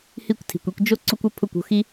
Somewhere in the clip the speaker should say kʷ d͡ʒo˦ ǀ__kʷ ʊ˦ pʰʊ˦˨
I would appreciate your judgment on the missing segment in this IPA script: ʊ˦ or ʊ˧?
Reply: ʊ˦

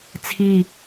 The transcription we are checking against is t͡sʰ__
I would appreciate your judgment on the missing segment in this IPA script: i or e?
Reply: i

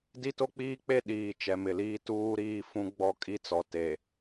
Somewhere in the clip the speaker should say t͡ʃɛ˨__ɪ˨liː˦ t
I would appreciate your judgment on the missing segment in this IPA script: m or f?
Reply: m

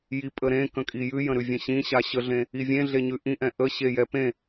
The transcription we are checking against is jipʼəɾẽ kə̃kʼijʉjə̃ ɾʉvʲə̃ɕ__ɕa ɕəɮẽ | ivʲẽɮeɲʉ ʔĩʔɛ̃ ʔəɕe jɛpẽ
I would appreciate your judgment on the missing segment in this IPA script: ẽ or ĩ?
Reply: ĩ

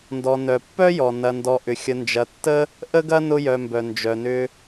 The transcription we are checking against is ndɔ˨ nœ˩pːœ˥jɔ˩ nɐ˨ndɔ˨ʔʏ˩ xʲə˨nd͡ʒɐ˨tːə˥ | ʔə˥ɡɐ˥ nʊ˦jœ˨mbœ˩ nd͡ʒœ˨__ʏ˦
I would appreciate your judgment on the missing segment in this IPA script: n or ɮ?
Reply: n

